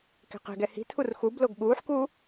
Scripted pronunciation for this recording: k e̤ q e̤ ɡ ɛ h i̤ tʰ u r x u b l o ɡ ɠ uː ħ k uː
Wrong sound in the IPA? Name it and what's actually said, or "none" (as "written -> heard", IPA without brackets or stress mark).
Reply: none